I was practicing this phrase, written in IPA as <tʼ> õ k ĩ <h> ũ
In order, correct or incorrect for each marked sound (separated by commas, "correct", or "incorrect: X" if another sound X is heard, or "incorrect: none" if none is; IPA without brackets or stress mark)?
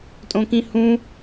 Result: correct, correct